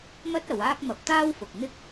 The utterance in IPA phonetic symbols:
m ɐ˥ t̚ ɐ˨˧ w aː˥ k̚ m ɐ˧ p̚ t̪ aː˥ w f ʊ˨ k̚ n̪ ɪ˥ k̚

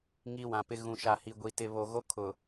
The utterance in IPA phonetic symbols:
ŋ i˦ w ã˨ p ɪ˦ ɣ ũ˨ ʃ a˨ h i˨ ɡʷ i˨ t ɪ˨ β o˨ ɣ o˦ kʰ ʊ˨

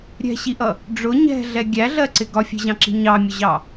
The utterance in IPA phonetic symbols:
ɾʲ ɛ̤ ɕ i ʔ ʌ | ɖ͡ʐ ʊ ɲ ɛ̤ ɮ ɛ ɡʲ æ ɮ ɜ ǀ ɪ ɡ ɒ fʲ ɛ̤ ʑ ɑ̃ ǁ i̤ ɲ ɑ mʲ ʊ ʑ ɑ

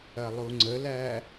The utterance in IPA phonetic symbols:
ɐ lˠ u ŋ͡ǀ ə l æ

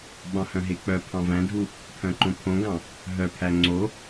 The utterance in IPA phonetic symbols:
ɓ ɑ̃ h œ̃ ɦ e k͡p œ pʰ ɑ̃ v æ̃ dʱ u | pʰ œ̃ ǃ õ pʰ õ ɡ ɑ̃ | ɦ œ pʰ æ ŋ͡ǀ o

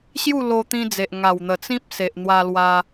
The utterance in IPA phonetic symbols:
ɕ j u˥˧ l o˧ t̪ ĩ˧ d͡z e˨ ʔ ŋ a˨˩ w n̪ ə˨˩ t͡s ĩ˦ p̚ s e˨ ʔ n̪ w a˧ l w a˧

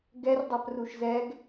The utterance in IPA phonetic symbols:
ɡ ɛ r dˤ a p r u ʃ z ɛ ɡ

